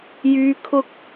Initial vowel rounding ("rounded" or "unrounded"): rounded